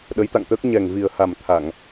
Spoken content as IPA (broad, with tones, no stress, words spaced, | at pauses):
ɗə˨˦jt̪a̰˧˨ŋt̪əː˦˥k̚ ɲɛ˨˩ŋvi˨˩ə̯ha˨˩m t̪ʰa˧˩˨ŋ